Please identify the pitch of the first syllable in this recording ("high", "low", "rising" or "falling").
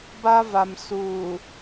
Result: high